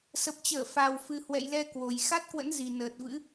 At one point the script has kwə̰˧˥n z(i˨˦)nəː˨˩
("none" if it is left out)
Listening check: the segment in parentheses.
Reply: i˨˩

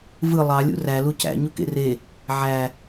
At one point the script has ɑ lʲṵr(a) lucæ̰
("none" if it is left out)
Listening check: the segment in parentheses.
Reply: æ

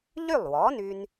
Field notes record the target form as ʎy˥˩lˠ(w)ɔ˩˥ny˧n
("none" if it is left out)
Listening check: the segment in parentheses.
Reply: w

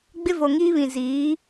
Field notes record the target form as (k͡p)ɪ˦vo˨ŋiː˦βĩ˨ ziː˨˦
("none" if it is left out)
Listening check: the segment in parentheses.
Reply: ɡ͡b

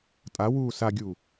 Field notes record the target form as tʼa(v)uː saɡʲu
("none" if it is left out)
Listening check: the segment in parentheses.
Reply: w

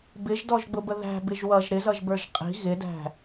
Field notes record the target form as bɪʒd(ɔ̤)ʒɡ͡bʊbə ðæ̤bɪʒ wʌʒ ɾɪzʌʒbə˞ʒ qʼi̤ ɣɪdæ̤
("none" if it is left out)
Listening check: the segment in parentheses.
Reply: ɔ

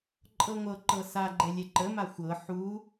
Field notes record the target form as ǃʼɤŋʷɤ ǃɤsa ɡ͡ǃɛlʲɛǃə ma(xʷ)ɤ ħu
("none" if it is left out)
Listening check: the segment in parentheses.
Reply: xʷ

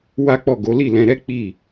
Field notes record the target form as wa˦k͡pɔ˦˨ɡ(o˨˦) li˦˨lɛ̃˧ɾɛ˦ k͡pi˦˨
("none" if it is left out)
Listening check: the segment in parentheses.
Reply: o˨˦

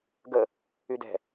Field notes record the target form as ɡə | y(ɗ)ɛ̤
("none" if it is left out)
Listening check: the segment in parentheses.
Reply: d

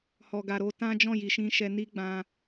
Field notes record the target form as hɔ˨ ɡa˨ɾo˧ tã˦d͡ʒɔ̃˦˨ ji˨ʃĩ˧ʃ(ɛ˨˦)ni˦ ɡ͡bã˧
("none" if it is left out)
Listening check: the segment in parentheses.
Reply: ɛ˧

